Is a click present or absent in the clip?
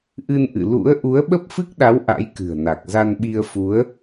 absent